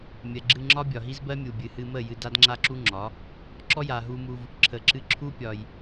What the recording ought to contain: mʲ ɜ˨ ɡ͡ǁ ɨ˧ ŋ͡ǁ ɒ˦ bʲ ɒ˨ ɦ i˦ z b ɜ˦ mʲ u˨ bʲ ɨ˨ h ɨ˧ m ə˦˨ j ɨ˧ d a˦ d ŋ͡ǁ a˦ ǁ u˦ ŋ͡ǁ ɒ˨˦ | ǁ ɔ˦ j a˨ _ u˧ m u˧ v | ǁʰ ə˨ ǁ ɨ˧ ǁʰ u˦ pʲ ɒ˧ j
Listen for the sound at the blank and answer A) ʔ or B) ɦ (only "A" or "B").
B